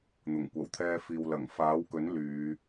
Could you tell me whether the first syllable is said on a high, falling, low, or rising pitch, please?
low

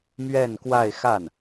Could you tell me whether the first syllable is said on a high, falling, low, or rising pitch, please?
falling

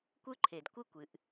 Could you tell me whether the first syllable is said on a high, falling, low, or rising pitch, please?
high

